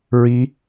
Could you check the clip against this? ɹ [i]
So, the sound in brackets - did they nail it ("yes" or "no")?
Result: yes